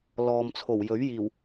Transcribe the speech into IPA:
l ɔː˨ m t͡sʰ o˨˩ w j ɵ˨˥ ɥ j iː˨˩ w

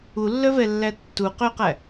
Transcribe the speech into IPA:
u lː œ v ɛ lː æ tː u q ø q æ

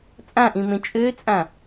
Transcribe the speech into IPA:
t͡sʼ ã ʔ ĩ m ẽ t͡ʃʼ ø t͡sʼ ã

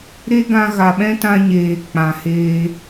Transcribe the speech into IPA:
ɾ e˦ ɡ ã˧ ɣ a˨ ɓ ɛ̃˦ t ã˧ ɲ eː˨ k͡p ã˨ h eː˧

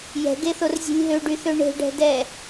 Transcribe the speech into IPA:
j ɛ̤ ɡ e θ o r zʲ e̤ lʲ ɦ ø ɖ y θ ø ɳ e̤ ɖ ɛ̤ d ɛ

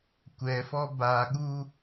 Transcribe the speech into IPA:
kʷ ɛ f ɔ b a ɠ u

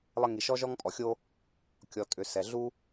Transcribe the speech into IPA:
lˠ ə˧ ŋ i˩ ʃ ɔ˥ ʒ ɔ˥ ŋ pʼ ɔ˩ xʲ o˥ | kʲ ɔ˩ tʼ ʏ˩ s ɛ˩ ɮ u˥

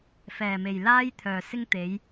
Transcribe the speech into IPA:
f ɛː˨˩ m e˨˩ j l aː˥ j t̪ʰ œː˨˩ s ɪ˥ ŋ t̪ e˨˥ j

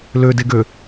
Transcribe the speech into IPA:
l ø d e ɡ ø

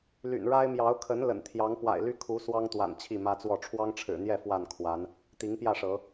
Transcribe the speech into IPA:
l y̰˨˩ n ɻ a˦ ɪ̯ m j ɑ˨˦ ʊ̯ kʰ ə˨˦ n l ə̰˨˩ n t̪ʰ j ɑ˨˦ ŋ p w a̰˨˩ ɪ̯ l y˦ kʰ u˨˦ s w ɑ˦ ŋ t̪ w a̰˨˩ n t͡ɕʰ i˥˨ m ä˦ t͡s w ɔ˥˨ ʈ͡ʂʰ w ɑ˦ ŋ ʈ͡ʂʰ ɻ̩˨˩ n̪ j ɛ˥˨ f w a˥˨ n kʰ w a˨˦ n | t̪ i˨˦ ŋ p j ä˥˨ ʂ ɤ˨˦

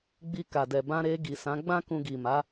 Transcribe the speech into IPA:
ɡ͡b i˧ k a˨ d ɛ˨ b ã˧ ɾ e˧ ɡ i˨ s ã˨˦ ɡ͡b ã˦ k ũ˧ ɡ i˨ m a˨˦

